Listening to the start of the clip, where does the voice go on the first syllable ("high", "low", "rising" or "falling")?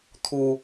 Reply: low